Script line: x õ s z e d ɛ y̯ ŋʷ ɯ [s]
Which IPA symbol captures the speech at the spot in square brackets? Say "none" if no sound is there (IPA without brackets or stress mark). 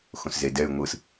s